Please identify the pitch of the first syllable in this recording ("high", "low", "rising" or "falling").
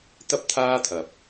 high